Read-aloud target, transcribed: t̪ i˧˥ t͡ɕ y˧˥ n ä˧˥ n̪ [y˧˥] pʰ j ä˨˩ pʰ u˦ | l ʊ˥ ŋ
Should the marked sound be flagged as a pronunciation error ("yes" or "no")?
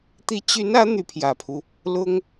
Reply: no